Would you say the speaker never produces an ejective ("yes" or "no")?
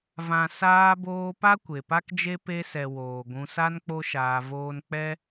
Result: yes